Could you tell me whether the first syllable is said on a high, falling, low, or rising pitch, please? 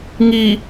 low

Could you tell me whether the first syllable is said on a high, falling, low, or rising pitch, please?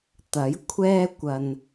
rising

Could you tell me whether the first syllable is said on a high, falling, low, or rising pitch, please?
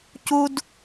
high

